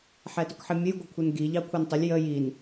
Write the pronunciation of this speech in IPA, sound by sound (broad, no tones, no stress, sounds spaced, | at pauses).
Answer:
ħ ɛ t ʊ k ħ ɪ mʲ ə j ɡʷ ə kʷʰ ɛ n ɡ i ʎ ɑ kʷʰ ɜ n tˤ ʊ lʲ j ə j i n